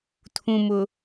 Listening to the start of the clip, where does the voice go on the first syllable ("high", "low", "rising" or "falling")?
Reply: low